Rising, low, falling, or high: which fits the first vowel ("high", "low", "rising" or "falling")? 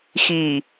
low